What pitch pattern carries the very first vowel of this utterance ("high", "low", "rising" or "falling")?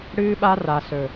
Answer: high